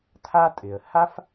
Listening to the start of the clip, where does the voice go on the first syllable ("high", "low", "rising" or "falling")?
high